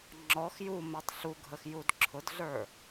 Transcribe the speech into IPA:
ŋ͡ǁɔx ju mɛtˤɬuɡʱəx judǁʰʊdɮə˞

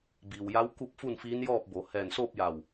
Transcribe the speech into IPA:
biː˩wja˧˥w ku˥˨p̚fu˥˨nfiː˧˥njɔː˥˨p̚ bo˩˧ hɛː˧˩nsoː˥˨p̚ja˧˩w

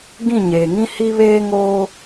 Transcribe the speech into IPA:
ɡĩ˦˨ ɲeː˨ ŋĩ˦ hi˦βeː˦ ŋoː˦

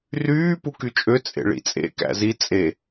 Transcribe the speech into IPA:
ryː pukyt͡ʃʼø t͡sʼḛɭḭt͡sʼḛ kæ̰zi t͡sʼe

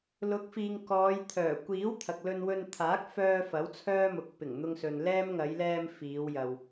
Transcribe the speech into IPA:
lʊ˨˥k̚fiː˨ŋ kɔː˨˧jt̪ʰœː˨˩ kʷiː˨˥w t̪ʰɐ˨k̚lɵ˧nwɵ˧n t̪ʰaː˨˥k̚fœː˧ fɐ˨˥wt͡sʰœː˥mʊ˨k̚ pɪ˨˩ŋn̪ʊ˧ŋsɵ˨n lɛː˥m ŋɐ˨˧jlɛː˧m fiː˨˧wjɐ˨w

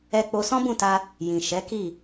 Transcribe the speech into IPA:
ɛ˦k͡po˦ sɔ̃˦bũ˦˨ta˧ | jĩ˨ ʃɛ˨˦ki˦˨

